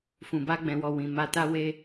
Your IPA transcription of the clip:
fũ˨ba˧ ɡ͡bɛ̃˨wɔ˨ wĩ˨ ma˧ta˦we˦

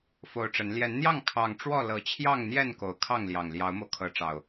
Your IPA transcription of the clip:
fo˨˩ʊ̯ʈ͡ʂə˨˦n ljɛ˨˦nn̪jɑ˥˨ŋ kʰɑ˨˩ŋʈ͡ʂwɔ˥˨lɤ˨˦ t͡ɕʰjɑ˥˨ŋn̪jɛ˥˨n ko˨˦ʊ̯kʰɑ˥˨ŋljɑ˨˩ŋ ljɑ˨˦ʊ̯mo˧ʊ̯ kʰɤ˨˦ʈ͡ʂɑ˨˩ʊ̯

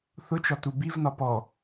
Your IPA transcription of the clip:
θʊt͡ʃɒ tubivnɒ pɔ

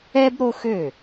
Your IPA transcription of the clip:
ɛ˥b ɾo˥xø˥˩

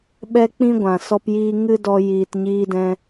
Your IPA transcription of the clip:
ɓɛ˦k͡pĩ˦ ɡʷã˨sɔ˧pjiː˧ ŋɨ˦dɔ˧ jiː˨tɲiː˧dɛ̃˧

